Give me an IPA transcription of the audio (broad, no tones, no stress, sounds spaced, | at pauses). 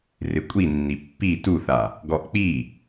r ɪ kʷʼ i nː i pː i t u θ a | ɡ ɔ ʔ k͡p i